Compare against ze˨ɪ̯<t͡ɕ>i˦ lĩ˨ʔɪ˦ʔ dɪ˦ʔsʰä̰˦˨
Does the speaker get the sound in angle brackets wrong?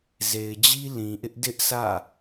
yes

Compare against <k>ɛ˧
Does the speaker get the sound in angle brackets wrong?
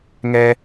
yes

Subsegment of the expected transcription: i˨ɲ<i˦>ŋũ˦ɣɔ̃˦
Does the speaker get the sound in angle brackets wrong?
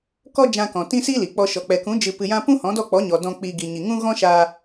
yes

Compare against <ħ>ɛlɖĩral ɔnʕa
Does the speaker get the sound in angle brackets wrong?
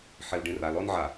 no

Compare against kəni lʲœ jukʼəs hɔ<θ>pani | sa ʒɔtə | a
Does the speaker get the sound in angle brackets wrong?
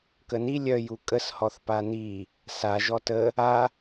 no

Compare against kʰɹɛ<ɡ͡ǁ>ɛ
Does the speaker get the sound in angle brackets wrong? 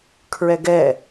yes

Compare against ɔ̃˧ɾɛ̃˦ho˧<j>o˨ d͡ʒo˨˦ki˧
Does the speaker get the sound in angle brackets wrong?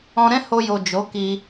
no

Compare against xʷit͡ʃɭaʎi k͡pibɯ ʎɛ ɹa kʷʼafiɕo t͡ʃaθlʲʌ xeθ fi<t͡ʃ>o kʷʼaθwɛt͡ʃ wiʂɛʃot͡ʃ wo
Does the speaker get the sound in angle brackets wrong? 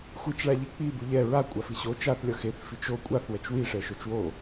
no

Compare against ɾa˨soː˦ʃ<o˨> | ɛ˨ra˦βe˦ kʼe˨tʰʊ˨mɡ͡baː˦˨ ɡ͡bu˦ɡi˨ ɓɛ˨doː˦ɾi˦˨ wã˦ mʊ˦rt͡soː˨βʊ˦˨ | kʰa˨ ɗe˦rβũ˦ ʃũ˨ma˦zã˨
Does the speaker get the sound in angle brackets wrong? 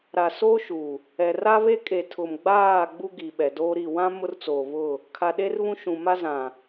yes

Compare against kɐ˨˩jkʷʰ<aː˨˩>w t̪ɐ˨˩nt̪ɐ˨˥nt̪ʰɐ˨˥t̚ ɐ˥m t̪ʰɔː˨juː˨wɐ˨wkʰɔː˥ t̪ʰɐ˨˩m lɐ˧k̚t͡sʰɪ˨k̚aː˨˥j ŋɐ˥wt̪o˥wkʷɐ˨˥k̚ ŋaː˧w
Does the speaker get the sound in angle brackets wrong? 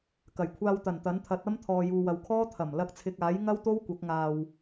yes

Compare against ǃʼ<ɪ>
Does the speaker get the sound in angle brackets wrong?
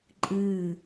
yes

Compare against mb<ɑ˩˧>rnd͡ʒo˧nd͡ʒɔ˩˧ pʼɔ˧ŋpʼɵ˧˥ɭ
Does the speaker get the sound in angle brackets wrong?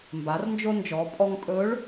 yes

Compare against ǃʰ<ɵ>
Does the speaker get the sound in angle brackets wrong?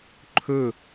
no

